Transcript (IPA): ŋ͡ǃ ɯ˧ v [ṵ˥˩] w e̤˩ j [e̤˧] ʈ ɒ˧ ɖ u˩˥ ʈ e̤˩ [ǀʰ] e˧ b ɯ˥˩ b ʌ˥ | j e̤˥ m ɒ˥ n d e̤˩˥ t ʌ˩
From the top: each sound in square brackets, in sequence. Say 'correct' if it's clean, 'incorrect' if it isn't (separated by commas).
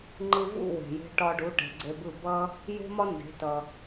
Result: correct, correct, incorrect